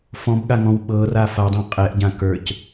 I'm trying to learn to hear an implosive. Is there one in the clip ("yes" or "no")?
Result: yes